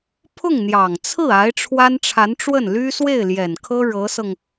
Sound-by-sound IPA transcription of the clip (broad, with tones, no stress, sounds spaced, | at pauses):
pʰ ʊ˥˩ ŋ n̪ j ɑ˨˩ ŋ t͡sʰ ɹ̩˥˩ a˧˥ ɪ̯ ʈ͡ʂʰ w a˥ n ʈ͡ʂʰ a˧˥ n ʈ͡ʂ w ə˥˩ n l y˥ s w e˥˩ ɪ̯ l j ɛ˨˩ n kʰ ɤ˥ ɻ ɤ˧˥ s ɤ˧ ŋ